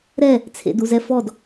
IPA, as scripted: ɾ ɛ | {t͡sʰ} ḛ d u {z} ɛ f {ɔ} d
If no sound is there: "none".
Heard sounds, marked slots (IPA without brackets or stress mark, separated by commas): t͡sʰ, z, ɔ